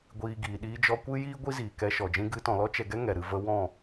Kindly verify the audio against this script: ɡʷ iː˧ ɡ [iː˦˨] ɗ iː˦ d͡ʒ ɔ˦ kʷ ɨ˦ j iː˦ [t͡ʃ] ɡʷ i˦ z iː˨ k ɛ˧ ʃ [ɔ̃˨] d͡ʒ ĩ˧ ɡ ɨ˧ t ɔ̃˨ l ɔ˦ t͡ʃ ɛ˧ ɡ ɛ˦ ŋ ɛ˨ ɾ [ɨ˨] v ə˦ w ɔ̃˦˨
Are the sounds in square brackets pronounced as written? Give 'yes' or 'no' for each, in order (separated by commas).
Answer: no, no, no, no